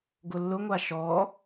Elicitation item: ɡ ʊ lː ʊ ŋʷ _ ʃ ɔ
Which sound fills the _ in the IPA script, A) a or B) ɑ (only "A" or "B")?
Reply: A